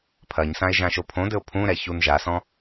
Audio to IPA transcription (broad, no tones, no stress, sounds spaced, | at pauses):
pʰ ɐ ɲ s ã e̯ ʒ ã ʃ o pʰ õ d ɘ o̯ pʰ ũ ɾ ɛ ç u n ʒ a s ɔ̃